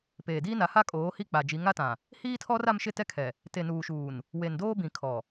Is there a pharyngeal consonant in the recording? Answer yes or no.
no